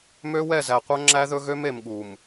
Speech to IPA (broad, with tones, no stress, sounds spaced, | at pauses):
m ø˦ w ɛ˦˨ z æ˨ qʷ œ˦ ŋ͡ǁ æ˦ ð ɵ˦ ɣ ø˦ m e˨ m ɠ u˨ m